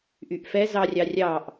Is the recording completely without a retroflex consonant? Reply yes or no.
yes